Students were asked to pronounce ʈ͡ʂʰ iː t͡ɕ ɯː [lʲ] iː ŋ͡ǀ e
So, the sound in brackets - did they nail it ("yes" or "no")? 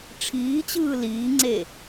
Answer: no